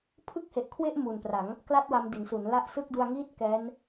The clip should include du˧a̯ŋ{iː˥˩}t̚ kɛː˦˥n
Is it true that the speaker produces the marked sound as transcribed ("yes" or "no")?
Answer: yes